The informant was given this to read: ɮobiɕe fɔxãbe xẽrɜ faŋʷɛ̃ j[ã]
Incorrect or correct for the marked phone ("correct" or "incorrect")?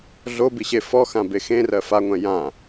correct